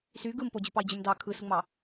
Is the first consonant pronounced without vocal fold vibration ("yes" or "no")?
yes